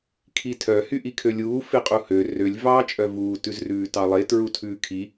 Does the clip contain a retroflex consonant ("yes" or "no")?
no